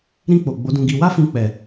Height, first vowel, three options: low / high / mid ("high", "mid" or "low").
high